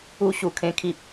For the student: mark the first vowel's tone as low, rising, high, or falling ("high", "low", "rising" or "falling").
high